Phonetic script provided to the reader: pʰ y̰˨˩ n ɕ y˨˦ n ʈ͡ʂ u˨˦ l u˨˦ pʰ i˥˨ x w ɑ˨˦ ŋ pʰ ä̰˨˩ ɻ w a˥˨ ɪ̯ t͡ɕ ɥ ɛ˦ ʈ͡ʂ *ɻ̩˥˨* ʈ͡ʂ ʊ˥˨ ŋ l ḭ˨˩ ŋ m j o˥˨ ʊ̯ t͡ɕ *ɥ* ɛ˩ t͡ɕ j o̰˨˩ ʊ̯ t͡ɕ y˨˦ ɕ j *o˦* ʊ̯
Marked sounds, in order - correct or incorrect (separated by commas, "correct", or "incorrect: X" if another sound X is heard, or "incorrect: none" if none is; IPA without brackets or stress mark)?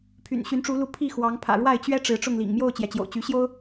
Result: incorrect: ɻ̩˨˦, incorrect: j, correct